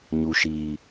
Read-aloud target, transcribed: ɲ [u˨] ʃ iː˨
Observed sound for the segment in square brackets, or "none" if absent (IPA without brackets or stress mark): u˨